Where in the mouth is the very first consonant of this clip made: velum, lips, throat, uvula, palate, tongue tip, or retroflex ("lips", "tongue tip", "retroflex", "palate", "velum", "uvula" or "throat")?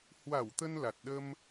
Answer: throat